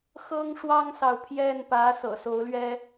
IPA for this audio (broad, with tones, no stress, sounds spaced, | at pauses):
x ɤ˥ ŋ ʂ w ɑ˥ ŋ s ɑ˨ ʊ̯ pʰ j ɛ˥˩ n p ä˧˥ s ɤ̰˨˩ s o˧˥ ʊ̯ l ɥ ɛ˥